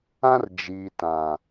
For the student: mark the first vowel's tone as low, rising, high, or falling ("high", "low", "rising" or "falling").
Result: high